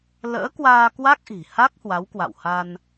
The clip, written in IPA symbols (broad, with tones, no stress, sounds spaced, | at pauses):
l ə̰ː˧˥ k w aː˧ k w a˦˥ k̚ ʔ i̤˨˩ h a˦˥ k̚ h w a˨˦ w k w a̰˧˨ w h a˧ n